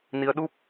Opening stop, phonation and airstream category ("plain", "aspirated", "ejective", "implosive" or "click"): implosive